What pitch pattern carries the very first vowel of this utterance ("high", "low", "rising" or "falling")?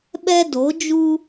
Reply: high